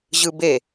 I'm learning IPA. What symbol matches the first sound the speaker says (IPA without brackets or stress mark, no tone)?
ʑ